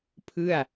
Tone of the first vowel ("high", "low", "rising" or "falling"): falling